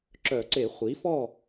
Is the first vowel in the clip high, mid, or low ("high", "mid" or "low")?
mid